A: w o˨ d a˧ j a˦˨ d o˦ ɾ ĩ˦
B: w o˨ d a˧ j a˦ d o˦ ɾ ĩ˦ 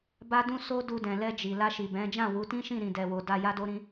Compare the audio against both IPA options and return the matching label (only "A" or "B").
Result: B